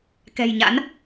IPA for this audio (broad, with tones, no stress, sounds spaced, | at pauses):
k ɛ̤˨˩ j ɲ a̰˧˥ n